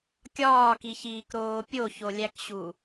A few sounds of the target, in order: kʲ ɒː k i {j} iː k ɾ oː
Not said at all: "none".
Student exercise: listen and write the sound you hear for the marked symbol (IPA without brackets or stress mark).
ç